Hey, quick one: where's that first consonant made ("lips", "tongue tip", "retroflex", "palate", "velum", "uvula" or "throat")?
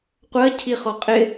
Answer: uvula